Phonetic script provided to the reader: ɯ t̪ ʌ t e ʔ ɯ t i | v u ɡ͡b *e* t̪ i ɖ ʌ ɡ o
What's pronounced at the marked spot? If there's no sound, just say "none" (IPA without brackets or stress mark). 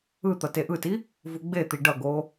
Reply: e